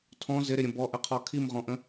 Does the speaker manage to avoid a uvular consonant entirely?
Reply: no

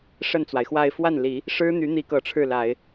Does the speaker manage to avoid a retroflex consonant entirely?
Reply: no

